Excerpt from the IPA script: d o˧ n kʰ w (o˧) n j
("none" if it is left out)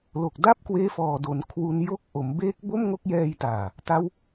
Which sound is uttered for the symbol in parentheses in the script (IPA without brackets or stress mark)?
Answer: u˧